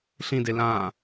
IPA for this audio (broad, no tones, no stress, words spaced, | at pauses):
ɬĩde lãː